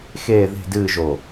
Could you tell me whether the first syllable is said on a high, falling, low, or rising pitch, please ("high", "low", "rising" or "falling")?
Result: falling